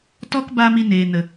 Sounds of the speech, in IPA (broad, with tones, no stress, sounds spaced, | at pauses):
t ɔ˦ k b a˧ m i˧ n eː˨ n ə˨